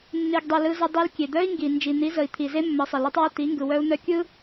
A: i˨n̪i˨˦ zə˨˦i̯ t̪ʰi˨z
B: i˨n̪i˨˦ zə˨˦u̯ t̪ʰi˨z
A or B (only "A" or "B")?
A